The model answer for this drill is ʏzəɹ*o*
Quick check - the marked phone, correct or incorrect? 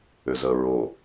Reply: correct